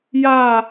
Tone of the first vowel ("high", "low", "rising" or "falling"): falling